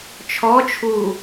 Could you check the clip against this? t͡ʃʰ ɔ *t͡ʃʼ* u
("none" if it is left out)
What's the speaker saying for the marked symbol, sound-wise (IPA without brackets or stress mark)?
t͡ʃʰ